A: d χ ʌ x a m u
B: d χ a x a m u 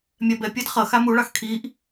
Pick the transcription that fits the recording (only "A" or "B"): A